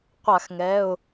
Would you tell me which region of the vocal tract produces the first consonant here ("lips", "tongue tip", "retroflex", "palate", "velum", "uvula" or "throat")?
uvula